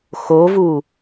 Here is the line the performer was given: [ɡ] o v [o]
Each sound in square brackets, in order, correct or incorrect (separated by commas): incorrect, incorrect